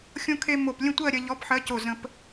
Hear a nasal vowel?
yes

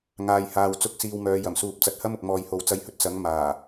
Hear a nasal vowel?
no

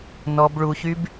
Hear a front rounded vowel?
yes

